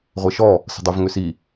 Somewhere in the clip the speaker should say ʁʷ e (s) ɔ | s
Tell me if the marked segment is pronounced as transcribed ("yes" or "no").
no